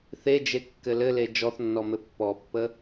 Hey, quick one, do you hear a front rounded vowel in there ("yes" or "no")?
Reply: no